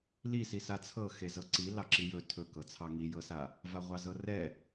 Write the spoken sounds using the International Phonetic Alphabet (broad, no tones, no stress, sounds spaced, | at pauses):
l i s i s a t͡sʰ ɤ x e z ɤ ǀ i l ɑ ǁ i j ɵ tʰ ɵ k ɤ t͡sʰ ɑ ŋ i j ɤ s a | v a ʁʷ ɑ z ɤ r ɛ